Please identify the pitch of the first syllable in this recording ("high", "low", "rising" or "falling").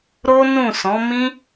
high